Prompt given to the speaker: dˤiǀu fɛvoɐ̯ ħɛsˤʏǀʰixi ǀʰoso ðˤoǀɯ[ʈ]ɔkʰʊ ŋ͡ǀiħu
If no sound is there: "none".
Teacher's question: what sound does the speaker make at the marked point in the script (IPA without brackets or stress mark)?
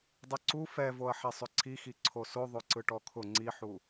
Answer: ʈ